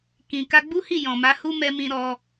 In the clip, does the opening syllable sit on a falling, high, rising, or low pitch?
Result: low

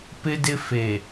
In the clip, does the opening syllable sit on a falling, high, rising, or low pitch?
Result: high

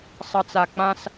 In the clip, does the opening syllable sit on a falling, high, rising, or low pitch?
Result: low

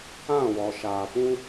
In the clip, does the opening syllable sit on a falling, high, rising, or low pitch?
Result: falling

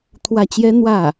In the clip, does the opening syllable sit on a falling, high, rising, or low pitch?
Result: falling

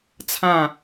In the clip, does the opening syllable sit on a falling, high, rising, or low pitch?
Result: falling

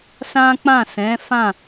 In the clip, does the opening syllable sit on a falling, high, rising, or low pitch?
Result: high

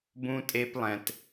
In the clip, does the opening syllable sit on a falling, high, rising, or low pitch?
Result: high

